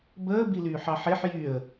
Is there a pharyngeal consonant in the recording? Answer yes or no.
yes